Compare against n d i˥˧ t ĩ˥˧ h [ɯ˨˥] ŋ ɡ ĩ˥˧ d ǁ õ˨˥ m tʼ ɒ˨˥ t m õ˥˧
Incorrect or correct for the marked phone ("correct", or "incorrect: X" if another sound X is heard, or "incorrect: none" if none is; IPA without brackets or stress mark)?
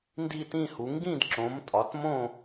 incorrect: u˨˥